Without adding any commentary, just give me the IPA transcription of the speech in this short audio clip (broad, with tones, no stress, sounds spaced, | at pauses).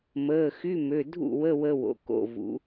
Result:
m əː˩˧˩ x y˧˥˧ m ø˩˧˩ dʱ ṵ˥˩ w ə˧˥˧ w ə˧ w o̰˩˧ k o̰˩˧˩ v ṵ˩˧